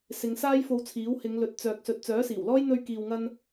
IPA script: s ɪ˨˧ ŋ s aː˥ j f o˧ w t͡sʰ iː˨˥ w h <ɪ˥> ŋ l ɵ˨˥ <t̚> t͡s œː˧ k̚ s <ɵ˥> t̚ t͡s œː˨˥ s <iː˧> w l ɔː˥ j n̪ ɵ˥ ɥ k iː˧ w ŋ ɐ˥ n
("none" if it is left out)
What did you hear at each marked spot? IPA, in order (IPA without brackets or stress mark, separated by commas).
ɪ˨˧, t̚, ɵ˧, iː˨˩